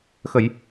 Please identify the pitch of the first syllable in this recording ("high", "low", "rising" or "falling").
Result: low